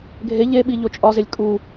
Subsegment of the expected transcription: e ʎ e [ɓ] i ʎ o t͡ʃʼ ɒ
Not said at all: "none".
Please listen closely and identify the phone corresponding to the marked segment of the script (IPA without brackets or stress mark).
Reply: ɓ